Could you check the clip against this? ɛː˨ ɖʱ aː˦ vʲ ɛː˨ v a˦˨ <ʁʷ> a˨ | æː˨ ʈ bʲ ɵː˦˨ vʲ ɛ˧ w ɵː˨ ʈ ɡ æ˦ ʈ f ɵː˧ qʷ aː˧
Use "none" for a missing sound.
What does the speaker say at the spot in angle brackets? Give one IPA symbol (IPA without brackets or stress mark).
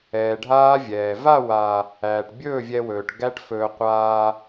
w